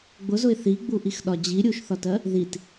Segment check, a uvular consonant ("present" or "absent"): absent